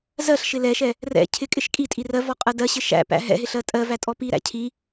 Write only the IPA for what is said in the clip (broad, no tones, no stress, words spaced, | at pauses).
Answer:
zɜɬʃɪ lɛʃɛ | rɛ̰ cʰɪkʼɪʃ kʼitʼi rɜvɔqʼɜ dɜɕɪ ʃæ̰pæ̰ ɦɛ̰ɦɪɬɜ tʼɜvætʼɔ piɾæ̰ cʰi